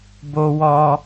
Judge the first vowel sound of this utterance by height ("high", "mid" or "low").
mid